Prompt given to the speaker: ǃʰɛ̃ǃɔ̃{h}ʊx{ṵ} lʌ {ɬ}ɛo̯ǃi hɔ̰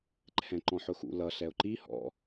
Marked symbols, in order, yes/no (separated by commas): no, yes, yes